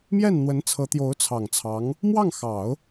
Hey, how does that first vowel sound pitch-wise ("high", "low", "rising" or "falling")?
falling